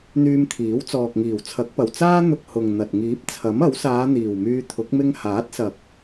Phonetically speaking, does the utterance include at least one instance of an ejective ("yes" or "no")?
no